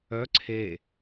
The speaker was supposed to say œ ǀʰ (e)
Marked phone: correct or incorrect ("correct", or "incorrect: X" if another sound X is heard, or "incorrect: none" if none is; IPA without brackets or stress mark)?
correct